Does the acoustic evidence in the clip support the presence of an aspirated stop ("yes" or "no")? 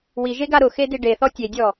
no